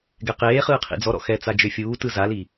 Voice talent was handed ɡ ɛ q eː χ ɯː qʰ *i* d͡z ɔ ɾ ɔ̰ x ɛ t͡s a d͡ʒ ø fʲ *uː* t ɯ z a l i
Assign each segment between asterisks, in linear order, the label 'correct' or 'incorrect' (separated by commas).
incorrect, correct